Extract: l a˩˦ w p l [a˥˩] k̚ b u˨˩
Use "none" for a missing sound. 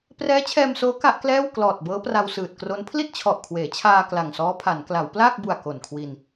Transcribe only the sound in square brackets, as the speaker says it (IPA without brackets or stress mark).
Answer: aː˥˩